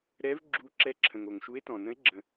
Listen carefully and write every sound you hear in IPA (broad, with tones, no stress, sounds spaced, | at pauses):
ɾ ɛ˨˦ v ɡ͡ǁ u˨˦ ǁ ɛ˨˦ ǁʰ ə̃˩ ŋ o˩ ŋ ʃ u˨˦ e̯ t ɔ̃˩ n ə̃˨˦ e̯ ɡ͡ǁ ə̃˩